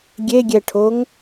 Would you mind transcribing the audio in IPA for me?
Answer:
ɡʲeɡʲɛʈʰoŋ

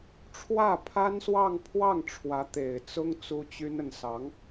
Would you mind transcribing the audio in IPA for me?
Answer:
ʈ͡ʂʰwä˥˩pʰa˥n swɑ˥˧ŋ pʰwɑ˥˩ŋ ʈ͡ʂʰwä˧˥t̪e˨˩ɪ̯t͡sʊ˥ŋ t͡su˥t͡ɕy˥nə˨n sɑ˧˥ŋ

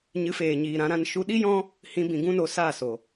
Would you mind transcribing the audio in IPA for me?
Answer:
ɲɨ˨˦feː˨ɲiː˨ ɾã˧ɾã˧n ʃu˧ɗi˦jɔ̃˦ | hĩ˧ bĩ˨ ɡũ˦no˧saː˦˨so˨

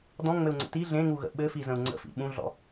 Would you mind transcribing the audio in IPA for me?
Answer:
dɔ̃ŋ͡mɘu̯ŋ͡ǀə̰ ti ɮẽŋuɣə̰ ɓɘfizə̃u̯ ŋ͡ǀə̰fḭ ɓũɮɔ̰

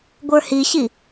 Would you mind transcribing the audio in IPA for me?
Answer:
ɡʷə˞hiɕi

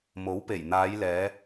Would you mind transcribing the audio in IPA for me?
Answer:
mo˨˥wpe˨˩j n̪aː˨˧jlɛː˨˧

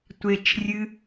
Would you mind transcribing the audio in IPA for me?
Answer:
tʷet͡ʃrʲɨ

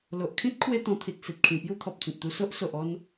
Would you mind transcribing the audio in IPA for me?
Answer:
lo˨ʔkʰĩ˦t̚ kʰwe˦t̪ɔ̃˧ t̪ʰi˨t̚si˨t̚kʰĩ˨˩ pju˦t̪ʰɔ˨p̚t͡sĩ˨t̚t̪u˧ so˦ʔso˨ʔɔ˧n

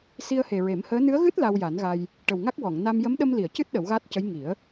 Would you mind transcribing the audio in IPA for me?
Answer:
si˧ə̯he˨˩ ɹe˨˩˦mhəː˧˥ nɨ˧˥ə̯ɣɨ˦˥t̚ la˧wja˨˩˦nɣa˧j | ʈə˨˩wŋa˦˥k̚ wɔ˨˩˨ŋ na˧m jə˧˥mɗə˧mli˨˩˨ə̯cɨ˦˥t̚ ɗə˨˩˦wɣaː˦˥t̚cə˧˥j ŋi˨˩˦ə̯

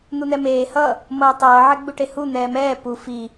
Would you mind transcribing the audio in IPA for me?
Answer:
n̪un̪ɛmeː hʌ | mʌːtˤʌː ʕɛɡ͡buʈehu n̪ɛːmɛː pu fi

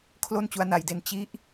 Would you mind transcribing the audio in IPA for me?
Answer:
kʰlo˥˩nt͡ɕu˦˥a̯na˧jde˦˥n t͡ɕi˦˥ʔ

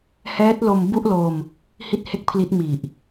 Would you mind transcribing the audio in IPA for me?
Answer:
hɛː˦˥t̚ lo˧m bu˥˩ʔlo˧m | hi˥˩t̚he˥˩k̚pʰli˦˥t̚ mi˨˩ʔ

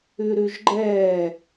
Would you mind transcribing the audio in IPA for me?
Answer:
ʉɾʉʒɡ͡ǃɛː

